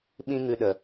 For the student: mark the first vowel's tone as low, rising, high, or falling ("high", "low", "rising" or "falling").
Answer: high